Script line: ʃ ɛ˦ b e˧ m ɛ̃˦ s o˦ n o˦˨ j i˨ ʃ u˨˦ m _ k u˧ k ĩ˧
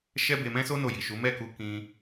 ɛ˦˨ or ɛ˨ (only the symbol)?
ɛ˦˨